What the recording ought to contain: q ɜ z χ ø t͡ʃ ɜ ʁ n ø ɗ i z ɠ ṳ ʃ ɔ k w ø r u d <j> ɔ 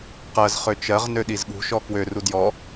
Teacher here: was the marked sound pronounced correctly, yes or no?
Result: yes